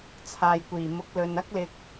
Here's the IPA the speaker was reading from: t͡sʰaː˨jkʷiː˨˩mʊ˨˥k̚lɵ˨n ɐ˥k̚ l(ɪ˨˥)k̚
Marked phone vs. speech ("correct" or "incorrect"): incorrect